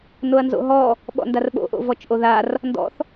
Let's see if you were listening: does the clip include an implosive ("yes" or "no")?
yes